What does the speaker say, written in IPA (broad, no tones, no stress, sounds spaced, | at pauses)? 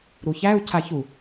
ɾ u ç æ u̯ cʰ a ç u